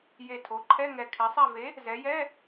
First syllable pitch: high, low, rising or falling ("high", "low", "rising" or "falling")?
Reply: low